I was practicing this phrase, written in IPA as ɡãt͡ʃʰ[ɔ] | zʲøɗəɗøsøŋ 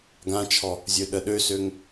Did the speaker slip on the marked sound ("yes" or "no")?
no